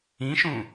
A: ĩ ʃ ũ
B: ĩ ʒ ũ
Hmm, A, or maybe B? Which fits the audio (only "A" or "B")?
A